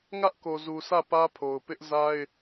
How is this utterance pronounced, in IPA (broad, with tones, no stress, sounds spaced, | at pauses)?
ŋ ä˦ ʔ k o˨ z u˨ s ä˦˨ p ä˦ pʰ o˨ ʊ̯ p ɪ˦ ʔ z a˦ ɪ̯